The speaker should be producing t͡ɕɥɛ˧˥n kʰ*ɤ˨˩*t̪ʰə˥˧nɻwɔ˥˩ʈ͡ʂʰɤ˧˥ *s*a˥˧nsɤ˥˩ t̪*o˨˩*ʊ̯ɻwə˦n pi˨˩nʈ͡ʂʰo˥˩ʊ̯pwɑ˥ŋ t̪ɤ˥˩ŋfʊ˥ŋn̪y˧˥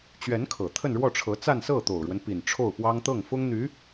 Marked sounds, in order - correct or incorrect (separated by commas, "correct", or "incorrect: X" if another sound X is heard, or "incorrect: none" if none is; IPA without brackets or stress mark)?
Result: correct, incorrect: t͡s, correct